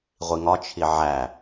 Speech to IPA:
ʁʷ i ŋ ɒ t͡ʃʰ i ʕ æ

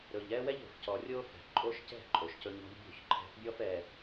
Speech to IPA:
ɾ ɵ˨ ʎ ɛ˦ w ɛ˦ ʎ o̤˨ f c ɔ˨ rʲ o˦ f ɛ̤˨ ʔ ǃʼ o˦ ʃ c ɛ̤˦˨ ǃʼ o˨ ʃ c ɵ˦ ɲ ɔ̤˦ ʎ bʲ o̤˦˨ ç ǃʰ ɛ̤˨˦ ʔ bʲ ɔ˦ f ɛ˨

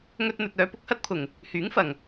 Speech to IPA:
ŋ ɵ˧ t̚ n̪ ɵ˨ t̚ œː˨˧ p ʊ˥ k̚ h ɐ˥ t̚ pʰ ʊ˨˩ ŋ | h yː˨˥ ŋ f ɐ˨˩ ŋ

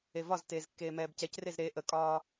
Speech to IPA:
e v ɒ z t eː z kː eː m ɛː b c ɛ c r e z ɾ e ʔ ə kʼ ɒː

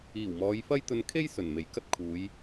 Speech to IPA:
iː˨˩ w m ɔː˨˧ j f ɐ˥ j t̪ ɵ˧ n kʰ e˥ j s ɵ˨˩ n m e˨˩ j k ɐ˥ t̚ kʰ uː˨˧ j

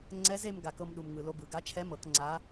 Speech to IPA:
ŋ͡ǀ ɛ˧˥ z e˧ m ɡ a˩ k ɤ˧ m ɗ u˩ m ŋ ɯ˩ l o˧ b ɯ˩ ɡ a˧˥ t͡ʃʰ ɛ˧˥ m ɤ˩˧ k ŋ͡ǀ a˧˥

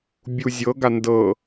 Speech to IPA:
bʲ u zʲ ɤ ɡ a n d ɤ

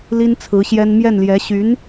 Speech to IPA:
l i˥ n t͡sʰ ɹ̩˧˥ ɕ j ɛ˥ n m j ɛ˥˩ n l j ɛ˧˥ ɕ y˧˥ n

